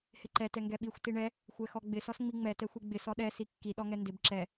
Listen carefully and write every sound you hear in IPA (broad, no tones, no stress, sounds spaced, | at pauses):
h ɪ ǃ ɛ t ɛ ŋ ɡ ɛ ɓ i xʷ t i ɳ ɛ | xʷ ɛ x ɔ ɡ͡b ɪ s ɔ s ŋ͡m i ŋ͡m ɛ t ɛ xʷ i ɡ͡b ɪ s ɔ ɗ ɛ s i kː i ɗ ɔ ŋ ɛ n d ɪ b ǁ ɛ